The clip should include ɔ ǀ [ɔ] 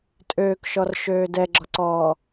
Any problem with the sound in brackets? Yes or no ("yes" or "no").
yes